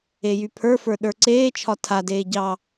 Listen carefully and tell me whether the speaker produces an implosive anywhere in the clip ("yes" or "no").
yes